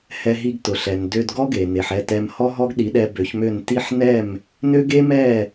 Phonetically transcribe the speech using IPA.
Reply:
hɛ˧ɦi˧ɡ tʊ˩ɬɛ˩n dø˧dɡɔ˥ɡe˩ ne˩ħɛ˥˩tɛ˧m hɔ˥ɦɔ˥ɡɗi˩˥ɗɛ˧ bø˩˥çmø˥˩n ti˥˩ħ nɛ˥˩m | nø˥ɡe˥ mɛ˥˩

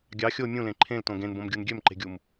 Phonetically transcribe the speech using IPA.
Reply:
ɡʲɑ xʲo mʲũlẽ ǃʰẽltõ ɡẽnbõmɡʲun ɡʲømǃe̤ɡʲum

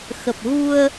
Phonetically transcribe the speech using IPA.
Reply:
xə˨˩p̚ɣu˧ə̯

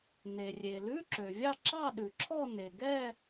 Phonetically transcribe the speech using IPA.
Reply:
ne˩rʲe˩ lʉ˧˥˧ǁø˩vʲɑ˥˧ ǁɑ˥˧ɗʉ˩ǁʰɔ˥˧ ne˩ɡɛ˥˧

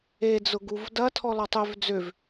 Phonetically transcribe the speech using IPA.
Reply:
ed͡zʊ ɡuvdɐ tʰɔlɔtˤøv d͡zøv

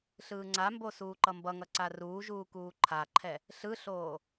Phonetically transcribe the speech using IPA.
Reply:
ɬɯːŋ͡ǀambo suːǃʌmbʌŋʌ ǀaruːʒuː kuːǃʰaǃʰɛ | ɬɯɬoː

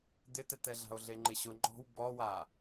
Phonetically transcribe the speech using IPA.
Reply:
d̪ɪtɛtɛɮa̤o̯ ɮeŋ͡ǃɪɕʊ ŋ͡ǃɔ̤w bɔwa

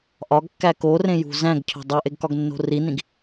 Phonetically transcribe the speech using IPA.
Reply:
ʔɒɡkːæ korẽjṳ zæ̃ɡcʰo̤ dˤoʔeɡkɒɡnːo̤ rinĩɡ

